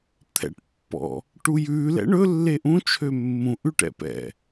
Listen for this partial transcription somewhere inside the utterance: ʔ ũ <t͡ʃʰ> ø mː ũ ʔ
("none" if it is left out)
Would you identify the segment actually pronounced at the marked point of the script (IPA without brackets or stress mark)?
t͡ʃʰ